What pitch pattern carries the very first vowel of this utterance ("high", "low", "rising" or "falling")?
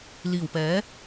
low